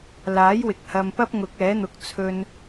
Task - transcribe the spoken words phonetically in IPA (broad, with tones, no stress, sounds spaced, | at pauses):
l aː˨˥ j w ɪ˨ k̚ h ɐ˧ m p ɐ˥ p̚ ŋ ʊ˨˥ k̚ ɛː˨˥ n̪ ʊ˨˥ k̚ t͡sʰ ɵ˧ n